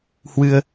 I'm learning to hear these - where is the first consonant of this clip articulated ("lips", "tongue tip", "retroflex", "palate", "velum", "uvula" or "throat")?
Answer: throat